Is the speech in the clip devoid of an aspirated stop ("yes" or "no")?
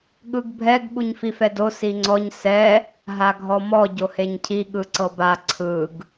no